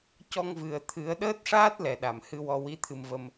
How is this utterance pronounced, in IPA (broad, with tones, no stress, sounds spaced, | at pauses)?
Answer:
c ɔ˧ ŋ v ɨ˨˩ ə̯ t̪ʰ ɨ˨˩˦ ə̯ ɗ əː˦˥ t̚ ʂ aː˦˥ t̚ l ɛ˨˩ ɗ a˨˩˨ m h ɨ˧ w ɔ˧ w i˧˥ t̪ʰ ɨ˧ m v ə˧ m